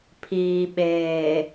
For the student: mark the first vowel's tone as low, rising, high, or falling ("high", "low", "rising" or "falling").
low